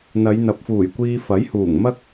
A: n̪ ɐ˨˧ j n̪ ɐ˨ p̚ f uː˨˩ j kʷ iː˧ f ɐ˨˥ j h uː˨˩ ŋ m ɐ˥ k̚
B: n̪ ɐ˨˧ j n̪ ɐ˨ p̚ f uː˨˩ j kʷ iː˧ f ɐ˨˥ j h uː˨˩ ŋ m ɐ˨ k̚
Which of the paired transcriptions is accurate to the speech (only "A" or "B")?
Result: A